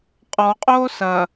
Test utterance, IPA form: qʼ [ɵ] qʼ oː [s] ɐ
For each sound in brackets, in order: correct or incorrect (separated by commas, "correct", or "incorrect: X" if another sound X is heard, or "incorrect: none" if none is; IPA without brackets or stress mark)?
incorrect: ɔ, correct